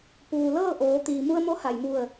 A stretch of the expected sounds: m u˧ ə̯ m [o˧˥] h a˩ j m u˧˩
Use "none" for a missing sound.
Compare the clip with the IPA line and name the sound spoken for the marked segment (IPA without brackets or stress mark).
o˧˥